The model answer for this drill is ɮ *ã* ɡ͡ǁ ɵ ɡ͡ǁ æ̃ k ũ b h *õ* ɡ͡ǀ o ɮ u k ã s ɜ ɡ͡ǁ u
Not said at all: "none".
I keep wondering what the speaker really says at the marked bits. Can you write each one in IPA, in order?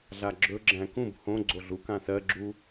a, õ

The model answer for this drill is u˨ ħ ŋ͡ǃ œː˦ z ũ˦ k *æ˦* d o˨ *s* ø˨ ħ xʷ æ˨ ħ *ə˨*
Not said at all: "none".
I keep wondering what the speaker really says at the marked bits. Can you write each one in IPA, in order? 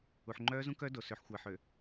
œ˦, s, ø˨

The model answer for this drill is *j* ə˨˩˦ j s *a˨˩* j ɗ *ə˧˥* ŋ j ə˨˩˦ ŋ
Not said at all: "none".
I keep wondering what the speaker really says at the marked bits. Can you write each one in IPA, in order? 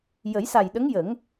j, a˨˩, ə˧˥

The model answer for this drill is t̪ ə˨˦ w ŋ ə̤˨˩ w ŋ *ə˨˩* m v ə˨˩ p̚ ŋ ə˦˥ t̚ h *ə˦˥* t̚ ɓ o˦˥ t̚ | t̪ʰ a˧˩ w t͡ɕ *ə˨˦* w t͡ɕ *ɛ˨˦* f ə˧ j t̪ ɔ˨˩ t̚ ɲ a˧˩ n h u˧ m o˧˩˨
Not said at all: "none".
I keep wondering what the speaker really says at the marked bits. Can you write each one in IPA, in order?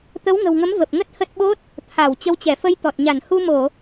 ə˨˦, ə˦˥, ə˨˦, ɛ˧˩

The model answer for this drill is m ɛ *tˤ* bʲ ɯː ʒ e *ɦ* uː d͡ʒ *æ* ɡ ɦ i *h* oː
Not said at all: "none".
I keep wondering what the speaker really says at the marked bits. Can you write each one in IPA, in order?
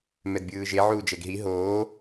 d, ʕ, ɛ, ɦ

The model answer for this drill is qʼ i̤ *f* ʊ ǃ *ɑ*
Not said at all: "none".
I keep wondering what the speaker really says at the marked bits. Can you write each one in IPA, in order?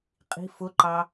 f, ɑ

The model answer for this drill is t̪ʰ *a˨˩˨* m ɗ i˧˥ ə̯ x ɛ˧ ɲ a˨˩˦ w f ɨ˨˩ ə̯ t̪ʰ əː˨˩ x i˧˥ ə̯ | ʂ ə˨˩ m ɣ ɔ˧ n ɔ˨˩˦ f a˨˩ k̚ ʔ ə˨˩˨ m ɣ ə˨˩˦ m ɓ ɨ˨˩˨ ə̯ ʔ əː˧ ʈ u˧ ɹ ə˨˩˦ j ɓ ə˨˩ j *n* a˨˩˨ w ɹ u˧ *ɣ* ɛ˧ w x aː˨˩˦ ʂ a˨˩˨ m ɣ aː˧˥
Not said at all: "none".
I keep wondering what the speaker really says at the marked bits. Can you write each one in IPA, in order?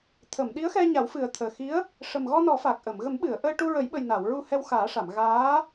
ə˨˩˨, n, h

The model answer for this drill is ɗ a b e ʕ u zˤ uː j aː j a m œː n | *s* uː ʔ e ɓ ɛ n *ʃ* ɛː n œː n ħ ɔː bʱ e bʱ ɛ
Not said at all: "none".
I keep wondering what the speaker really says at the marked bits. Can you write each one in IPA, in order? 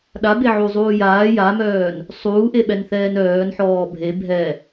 sˤ, θ

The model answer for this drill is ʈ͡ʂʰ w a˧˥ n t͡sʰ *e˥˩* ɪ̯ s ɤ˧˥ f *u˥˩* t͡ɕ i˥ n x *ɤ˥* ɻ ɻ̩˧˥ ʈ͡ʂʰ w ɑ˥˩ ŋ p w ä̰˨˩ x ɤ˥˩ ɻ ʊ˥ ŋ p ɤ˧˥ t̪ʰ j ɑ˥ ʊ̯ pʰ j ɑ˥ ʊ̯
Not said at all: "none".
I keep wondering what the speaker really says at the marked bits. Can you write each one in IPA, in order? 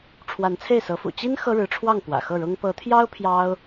e˥˩, ṵ˨˩, ɤ˥

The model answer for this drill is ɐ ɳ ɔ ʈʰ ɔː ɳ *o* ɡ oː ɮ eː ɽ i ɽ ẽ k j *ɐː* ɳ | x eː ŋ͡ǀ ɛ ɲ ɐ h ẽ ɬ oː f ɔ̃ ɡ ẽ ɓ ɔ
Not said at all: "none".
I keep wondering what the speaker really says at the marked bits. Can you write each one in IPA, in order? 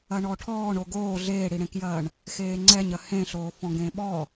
o, ɐː

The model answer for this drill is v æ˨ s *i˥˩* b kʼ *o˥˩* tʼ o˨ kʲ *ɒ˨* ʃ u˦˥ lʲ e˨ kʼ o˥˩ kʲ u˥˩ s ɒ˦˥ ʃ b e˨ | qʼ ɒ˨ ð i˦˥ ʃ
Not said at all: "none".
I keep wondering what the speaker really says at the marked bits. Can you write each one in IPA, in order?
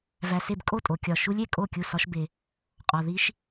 e˥˩, o˥˩, ɒ˨

